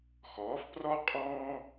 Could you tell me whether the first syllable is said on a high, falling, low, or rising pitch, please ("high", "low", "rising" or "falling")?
rising